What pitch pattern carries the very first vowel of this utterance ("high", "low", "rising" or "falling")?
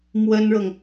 high